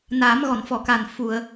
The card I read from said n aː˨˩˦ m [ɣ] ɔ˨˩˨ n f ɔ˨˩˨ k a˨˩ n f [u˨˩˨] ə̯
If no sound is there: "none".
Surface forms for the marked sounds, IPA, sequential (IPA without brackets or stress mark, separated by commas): ɣ, u˨˩˨